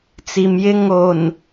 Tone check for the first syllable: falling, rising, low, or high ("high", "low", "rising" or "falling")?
low